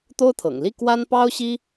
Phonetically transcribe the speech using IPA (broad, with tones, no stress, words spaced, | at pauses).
t̪o˥ʊ̯t̪ʰɤ̰˨˩ŋ li˥˩ kwa˥n pɑ˥ʊ̯ɕi˥